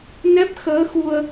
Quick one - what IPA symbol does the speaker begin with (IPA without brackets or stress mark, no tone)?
n